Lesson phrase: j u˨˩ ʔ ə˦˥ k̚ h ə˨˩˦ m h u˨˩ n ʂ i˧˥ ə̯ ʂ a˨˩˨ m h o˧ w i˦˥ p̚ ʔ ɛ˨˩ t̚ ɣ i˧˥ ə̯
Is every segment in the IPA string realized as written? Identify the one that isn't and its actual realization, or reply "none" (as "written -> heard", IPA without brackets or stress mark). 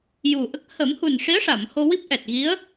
none